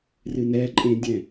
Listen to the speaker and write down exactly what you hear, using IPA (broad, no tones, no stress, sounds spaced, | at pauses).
r ɨ n ɛ ǃʼ ẽ dʲ ɛ̃